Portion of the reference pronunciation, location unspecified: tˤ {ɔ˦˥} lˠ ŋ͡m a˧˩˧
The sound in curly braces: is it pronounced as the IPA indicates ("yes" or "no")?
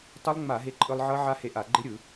no